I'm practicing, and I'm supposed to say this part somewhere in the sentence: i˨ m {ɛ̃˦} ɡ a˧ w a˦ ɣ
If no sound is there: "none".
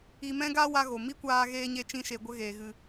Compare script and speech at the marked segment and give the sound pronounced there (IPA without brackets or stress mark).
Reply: ɛ̃˧